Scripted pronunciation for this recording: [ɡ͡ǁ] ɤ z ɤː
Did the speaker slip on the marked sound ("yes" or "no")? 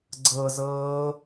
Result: yes